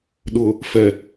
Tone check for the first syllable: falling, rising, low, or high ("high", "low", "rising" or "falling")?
low